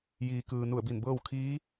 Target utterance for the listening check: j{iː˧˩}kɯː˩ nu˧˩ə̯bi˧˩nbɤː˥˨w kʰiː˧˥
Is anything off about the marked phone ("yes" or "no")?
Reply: yes